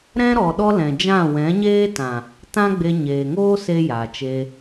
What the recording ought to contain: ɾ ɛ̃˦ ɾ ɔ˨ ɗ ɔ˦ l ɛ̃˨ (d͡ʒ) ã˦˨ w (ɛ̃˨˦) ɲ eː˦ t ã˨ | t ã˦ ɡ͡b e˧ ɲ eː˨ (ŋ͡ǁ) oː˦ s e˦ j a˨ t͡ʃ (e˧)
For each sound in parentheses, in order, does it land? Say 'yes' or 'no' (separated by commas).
yes, yes, no, yes